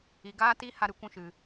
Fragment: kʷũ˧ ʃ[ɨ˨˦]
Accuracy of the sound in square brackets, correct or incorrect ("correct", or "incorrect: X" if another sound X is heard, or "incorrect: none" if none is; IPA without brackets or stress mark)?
incorrect: ɨ˨